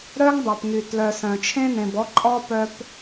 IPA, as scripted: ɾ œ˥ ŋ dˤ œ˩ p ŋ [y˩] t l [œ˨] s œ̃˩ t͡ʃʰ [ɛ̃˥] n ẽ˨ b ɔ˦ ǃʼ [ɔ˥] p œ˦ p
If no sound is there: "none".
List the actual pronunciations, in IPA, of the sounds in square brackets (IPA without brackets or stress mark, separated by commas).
y˩, œ˨, ẽ˥, ɔ˥